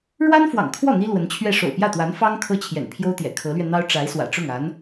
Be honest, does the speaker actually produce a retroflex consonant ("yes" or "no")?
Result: yes